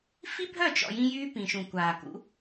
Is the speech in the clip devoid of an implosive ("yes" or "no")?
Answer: yes